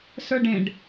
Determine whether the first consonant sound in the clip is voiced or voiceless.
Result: voiceless